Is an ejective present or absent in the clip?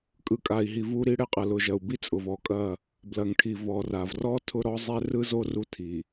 present